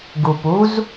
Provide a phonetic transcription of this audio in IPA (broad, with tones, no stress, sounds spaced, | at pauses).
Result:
ɡ u˨ p u˦ z